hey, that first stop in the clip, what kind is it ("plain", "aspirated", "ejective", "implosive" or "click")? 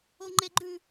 click